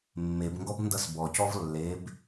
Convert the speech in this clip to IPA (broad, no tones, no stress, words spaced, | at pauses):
mːebŋɡɔb ndʌsbɔcɔv lːeb